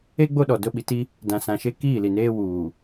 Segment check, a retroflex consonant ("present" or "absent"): absent